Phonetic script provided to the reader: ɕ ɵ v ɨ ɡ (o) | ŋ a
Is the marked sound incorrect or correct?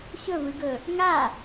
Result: incorrect: ɵ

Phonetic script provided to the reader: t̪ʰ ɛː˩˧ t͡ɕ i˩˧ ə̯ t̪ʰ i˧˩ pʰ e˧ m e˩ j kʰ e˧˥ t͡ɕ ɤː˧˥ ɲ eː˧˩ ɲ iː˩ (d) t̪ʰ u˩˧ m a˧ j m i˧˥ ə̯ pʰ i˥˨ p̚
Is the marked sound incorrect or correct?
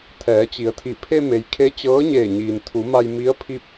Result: incorrect: n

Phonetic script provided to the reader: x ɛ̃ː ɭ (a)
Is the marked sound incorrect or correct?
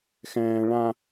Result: incorrect: ã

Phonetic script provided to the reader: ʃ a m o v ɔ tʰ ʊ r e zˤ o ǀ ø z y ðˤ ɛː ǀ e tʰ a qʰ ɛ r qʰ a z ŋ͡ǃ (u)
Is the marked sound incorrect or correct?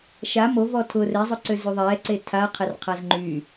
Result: incorrect: y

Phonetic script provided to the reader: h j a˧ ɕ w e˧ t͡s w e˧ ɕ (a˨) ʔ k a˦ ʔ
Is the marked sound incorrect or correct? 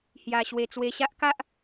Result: incorrect: a˦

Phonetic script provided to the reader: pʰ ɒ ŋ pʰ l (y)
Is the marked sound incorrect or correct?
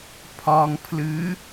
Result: incorrect: ɨ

